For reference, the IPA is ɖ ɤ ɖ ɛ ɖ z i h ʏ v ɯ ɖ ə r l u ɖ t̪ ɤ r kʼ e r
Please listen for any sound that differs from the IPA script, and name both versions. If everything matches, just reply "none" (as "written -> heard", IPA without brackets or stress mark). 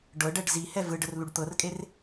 ʏ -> ɛ